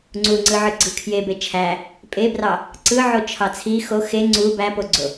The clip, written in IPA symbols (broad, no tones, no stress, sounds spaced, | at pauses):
ŋ͡ǀ u ŋ͡ǀ ɯ ʕ ɯ ɡ͡ǀ ɯ kʰ j e b e t͡ʃʰ æ | pʼ e b r ɑ | ǀ ɯ ʕ o t͡ʃʰ ɑ t͡sʰ i x o x e ŋ͡ǀ u b æ p o ɡ͡ǀ o